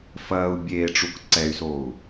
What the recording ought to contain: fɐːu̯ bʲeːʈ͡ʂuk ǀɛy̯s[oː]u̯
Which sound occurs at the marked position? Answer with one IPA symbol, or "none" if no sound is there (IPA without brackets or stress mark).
oː